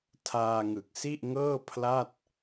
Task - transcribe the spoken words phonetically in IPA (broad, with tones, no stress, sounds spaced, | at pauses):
tʰ aː˧ ŋ ɯ˨˩ k̚ s i˥˩ ʔ ŋ ɤː˥˩ pʰ l a˥˩ t̚